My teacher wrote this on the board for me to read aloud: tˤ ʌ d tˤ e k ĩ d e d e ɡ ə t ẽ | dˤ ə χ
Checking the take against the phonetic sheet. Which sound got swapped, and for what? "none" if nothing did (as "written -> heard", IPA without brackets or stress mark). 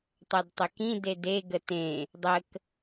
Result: χ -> k